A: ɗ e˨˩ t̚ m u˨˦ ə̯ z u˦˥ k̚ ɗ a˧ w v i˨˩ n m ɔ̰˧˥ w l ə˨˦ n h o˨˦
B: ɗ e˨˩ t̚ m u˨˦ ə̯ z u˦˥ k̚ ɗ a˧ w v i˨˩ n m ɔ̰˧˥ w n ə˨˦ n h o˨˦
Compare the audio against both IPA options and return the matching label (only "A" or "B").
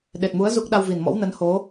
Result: B